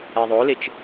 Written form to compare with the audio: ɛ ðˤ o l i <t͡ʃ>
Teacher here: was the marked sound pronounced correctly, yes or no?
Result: yes